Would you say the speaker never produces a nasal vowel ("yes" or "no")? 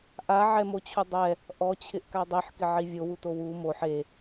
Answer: yes